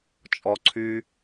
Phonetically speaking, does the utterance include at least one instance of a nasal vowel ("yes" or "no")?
no